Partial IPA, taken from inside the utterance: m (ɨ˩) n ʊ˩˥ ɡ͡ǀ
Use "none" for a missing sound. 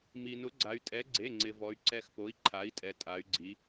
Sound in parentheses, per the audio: i˩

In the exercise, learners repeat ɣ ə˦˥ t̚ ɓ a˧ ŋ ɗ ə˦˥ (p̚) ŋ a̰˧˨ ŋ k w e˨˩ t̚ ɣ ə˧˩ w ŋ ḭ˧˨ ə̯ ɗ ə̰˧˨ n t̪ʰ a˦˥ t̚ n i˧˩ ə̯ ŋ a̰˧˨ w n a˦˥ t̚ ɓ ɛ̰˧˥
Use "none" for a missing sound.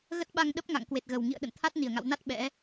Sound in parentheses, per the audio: p̚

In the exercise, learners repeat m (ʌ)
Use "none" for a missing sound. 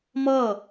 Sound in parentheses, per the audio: ʌ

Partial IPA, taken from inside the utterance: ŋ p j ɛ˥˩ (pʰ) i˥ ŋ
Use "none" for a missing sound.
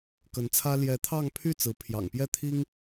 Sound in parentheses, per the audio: t̪ʰ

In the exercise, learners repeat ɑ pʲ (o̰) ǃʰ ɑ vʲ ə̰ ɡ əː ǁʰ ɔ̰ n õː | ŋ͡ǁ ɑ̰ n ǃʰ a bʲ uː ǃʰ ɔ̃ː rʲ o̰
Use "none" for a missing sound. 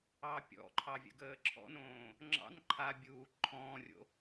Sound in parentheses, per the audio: ɔ̰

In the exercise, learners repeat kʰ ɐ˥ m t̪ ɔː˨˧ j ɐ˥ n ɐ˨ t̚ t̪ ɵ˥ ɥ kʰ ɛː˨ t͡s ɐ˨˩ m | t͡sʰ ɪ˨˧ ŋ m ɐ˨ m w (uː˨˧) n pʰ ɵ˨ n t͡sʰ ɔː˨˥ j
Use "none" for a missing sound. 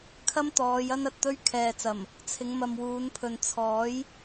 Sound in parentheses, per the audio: uː˨˧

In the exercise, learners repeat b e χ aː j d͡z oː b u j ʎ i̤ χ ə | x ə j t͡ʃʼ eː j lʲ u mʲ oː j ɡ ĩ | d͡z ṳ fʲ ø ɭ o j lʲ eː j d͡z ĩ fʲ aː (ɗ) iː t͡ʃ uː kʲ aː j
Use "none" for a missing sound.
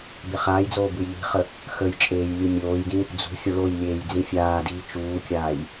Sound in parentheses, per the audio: d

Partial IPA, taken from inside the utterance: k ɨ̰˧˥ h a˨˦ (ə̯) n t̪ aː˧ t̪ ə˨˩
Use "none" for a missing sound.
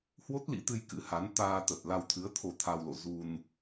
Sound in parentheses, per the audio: none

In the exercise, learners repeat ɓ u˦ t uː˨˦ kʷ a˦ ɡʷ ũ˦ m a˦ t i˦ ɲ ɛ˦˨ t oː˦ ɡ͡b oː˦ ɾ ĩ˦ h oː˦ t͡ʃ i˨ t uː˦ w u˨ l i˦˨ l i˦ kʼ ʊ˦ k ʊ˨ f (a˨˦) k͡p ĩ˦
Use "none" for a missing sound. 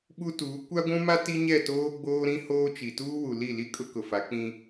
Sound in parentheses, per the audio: a˨˦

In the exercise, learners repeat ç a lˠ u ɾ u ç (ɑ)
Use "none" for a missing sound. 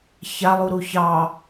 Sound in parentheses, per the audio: ɑ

